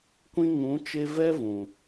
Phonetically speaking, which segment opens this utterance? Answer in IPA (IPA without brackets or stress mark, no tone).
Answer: kʷ